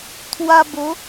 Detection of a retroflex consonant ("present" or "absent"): absent